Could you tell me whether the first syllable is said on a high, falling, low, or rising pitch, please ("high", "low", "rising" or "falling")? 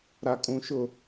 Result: low